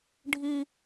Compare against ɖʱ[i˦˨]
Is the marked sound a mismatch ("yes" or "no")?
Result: yes